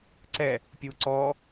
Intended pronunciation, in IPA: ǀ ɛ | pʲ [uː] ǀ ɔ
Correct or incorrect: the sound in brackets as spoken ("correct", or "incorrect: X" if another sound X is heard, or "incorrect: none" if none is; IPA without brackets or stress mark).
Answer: correct